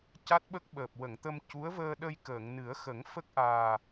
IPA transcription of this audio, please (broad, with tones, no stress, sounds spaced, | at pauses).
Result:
c a˦˥ t̚ ɓ ə˦˥ k̚ ɓ əː˨˩ p̚ w ə˨˩˨ ŋ t̪ ə˧ m c u˧˥ ə̯ v əː˧ ɗ ə˧ j k əː˨˩˨ ŋ n ɨ˨˩˦ ə̯ x ə˨˩˦ ŋ f ə˦˥ k̚ ʔ aː˨˩